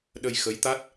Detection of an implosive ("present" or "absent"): present